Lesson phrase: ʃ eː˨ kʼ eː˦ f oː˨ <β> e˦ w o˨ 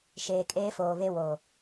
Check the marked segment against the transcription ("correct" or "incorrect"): correct